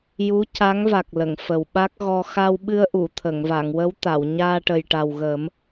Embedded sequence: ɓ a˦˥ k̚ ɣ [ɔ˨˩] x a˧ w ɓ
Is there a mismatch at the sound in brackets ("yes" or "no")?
yes